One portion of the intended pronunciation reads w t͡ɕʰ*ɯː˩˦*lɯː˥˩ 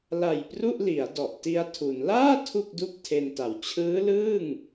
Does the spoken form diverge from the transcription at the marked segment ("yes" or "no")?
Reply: yes